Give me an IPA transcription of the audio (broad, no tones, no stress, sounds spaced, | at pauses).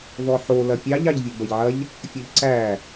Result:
ð ɔ ħ o l ɐ pʲ ɑ ʎ ɑ ʎ vʲ ɔ b ɐ ʎ ʕ ɐ ʎ | fʲ ɐ ʎ ǀ æ